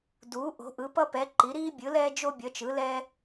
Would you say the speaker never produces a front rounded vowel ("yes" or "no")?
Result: yes